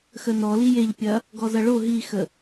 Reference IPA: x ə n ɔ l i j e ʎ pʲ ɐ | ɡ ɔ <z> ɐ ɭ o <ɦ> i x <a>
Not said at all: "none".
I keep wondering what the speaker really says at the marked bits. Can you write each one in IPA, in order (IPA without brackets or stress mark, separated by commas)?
z, ɦ, ə